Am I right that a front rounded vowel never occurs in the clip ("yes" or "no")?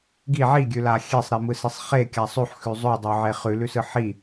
yes